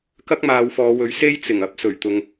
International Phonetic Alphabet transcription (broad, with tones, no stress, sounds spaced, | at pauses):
k ɐ˥ k̚ m aː˨˧ w f ɔː˨˧ w ɵ˨˥ ɥ s e˥ j t͡s ɪ˨˩ ŋ ɐ˧ p̚ s ɵ˨˩ ɥ t̪ ʊ˨ ŋ